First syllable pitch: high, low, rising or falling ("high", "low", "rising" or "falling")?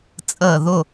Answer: falling